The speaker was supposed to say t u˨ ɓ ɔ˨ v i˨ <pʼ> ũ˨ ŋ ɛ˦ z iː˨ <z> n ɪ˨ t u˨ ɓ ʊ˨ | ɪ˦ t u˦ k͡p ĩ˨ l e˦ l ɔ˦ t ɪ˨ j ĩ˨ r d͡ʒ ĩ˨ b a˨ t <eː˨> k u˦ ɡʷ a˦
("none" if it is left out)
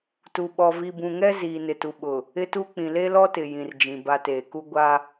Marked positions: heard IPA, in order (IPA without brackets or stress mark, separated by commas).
b, none, eː˨